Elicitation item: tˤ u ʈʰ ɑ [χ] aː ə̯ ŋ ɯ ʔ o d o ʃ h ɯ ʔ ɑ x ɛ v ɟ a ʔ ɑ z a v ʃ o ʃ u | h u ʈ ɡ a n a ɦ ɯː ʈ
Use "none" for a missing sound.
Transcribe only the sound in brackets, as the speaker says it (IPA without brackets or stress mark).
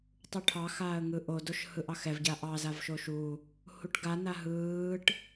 x